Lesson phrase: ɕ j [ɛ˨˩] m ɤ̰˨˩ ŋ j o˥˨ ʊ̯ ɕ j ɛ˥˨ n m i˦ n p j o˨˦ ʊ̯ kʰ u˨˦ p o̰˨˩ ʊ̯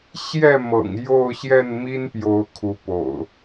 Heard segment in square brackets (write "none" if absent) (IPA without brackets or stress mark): ɛ˥˨